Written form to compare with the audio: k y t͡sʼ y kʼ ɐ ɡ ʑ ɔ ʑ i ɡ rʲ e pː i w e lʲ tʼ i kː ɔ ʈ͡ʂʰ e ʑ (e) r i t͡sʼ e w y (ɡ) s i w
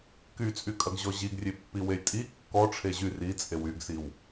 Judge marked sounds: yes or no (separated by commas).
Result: no, yes